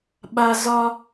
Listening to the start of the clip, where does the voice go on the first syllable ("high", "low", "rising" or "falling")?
high